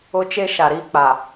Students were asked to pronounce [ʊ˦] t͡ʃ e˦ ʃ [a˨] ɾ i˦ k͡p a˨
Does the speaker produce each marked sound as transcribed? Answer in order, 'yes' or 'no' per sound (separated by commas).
yes, yes